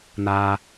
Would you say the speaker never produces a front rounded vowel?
yes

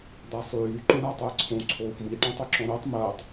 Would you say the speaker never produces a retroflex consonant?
no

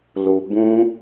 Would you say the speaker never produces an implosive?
yes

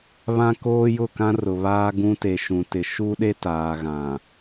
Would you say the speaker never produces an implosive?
no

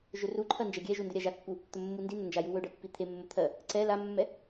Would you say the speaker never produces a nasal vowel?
yes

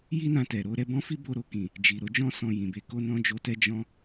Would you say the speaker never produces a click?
yes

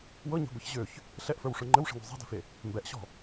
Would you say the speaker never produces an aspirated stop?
yes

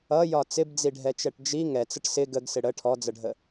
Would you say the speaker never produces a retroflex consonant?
no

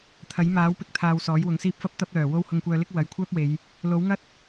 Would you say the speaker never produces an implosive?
yes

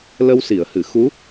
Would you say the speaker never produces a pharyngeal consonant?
yes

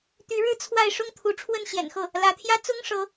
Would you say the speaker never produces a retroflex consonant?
no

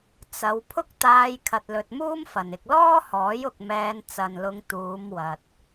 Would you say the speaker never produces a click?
yes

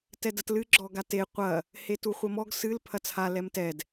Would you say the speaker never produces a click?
no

